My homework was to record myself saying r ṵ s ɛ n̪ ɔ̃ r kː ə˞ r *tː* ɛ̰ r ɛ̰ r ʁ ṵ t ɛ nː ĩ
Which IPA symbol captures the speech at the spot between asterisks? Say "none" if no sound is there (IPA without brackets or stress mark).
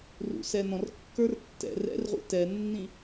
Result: tː